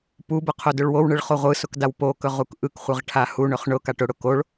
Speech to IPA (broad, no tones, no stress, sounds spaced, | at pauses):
p u b ʊ qʰ o d ɵ ɭ w o w ɳ ɯ ɭ χ o ʁʷ ɯ s ʊ k d a w p o k ɵ ʁ u k ʔ ɯ k χʷ ɯ ʁ ʈʰ a h u ɳ ɵ χ ɳ ʊ k a ʈ ʊ ɽ ʊ k o ɭ